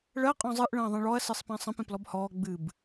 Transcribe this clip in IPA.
ɭ ɜ qʼ ɔ̃ zˤ ɨ ʔ ɭ ə̃ː ðˤ ẽ ɭ ɔ ɐ̯ s ɨ sˤ p ɛ̃ sˤ ə̃ p ẽ p l ɔ b h ɔː ɡ͡b ɨ b

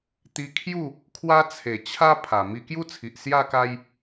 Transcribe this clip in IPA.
t̪ i˧ kʰ j u˥˧ | kʰ w a˦ t͡sʰ e˨˩ t͡ɕʰ a˦ pʰ a˨˩ m i˧ k j u˦ t͡sʰ i˨ ʔ s j a˥˧ k a˦ j

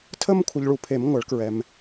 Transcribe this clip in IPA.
tʰ ə˥˧ m kʷʰ ə˨ ʎ ɭ u˨ pʰ e˨˩˦ m ŋʷ ɐ˨˩˦ ɭ k ɹ ɛ˨ m

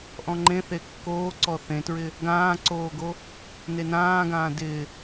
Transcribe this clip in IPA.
ʔ ɔ̃ ŋ͡ǃ ẽ θ e kː oː ǀ ɔ θ ẽ t ɹ ɪ | ɡ ãː ǀ oː ɡ o | n e n ãː ɡ ãː d ɪ

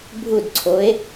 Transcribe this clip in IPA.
bʱ u d ǀʰ o e̯

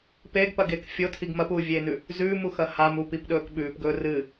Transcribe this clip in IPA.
p e ɡ p ɐ ɡ e k fʲ o tʰ i ɡ m ɐ p uː vʲ eː n ʉ | z ʉː m u x ɐ h a m u p i p ɗ ɵː k ɓ ʉː p ɡ ɵː r ɨ

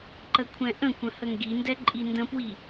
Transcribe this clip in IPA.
ǃ ə kʷʰ ɛ̃ ʔ ə̃ kʷ ə̃ h ə ŋ ɡ i n d ɛ ǃʼ i n d ə̃ p w i

